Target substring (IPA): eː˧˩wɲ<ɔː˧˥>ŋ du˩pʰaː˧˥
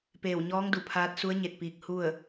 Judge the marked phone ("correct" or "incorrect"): correct